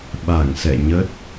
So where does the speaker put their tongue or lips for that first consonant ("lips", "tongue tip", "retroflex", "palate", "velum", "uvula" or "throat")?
lips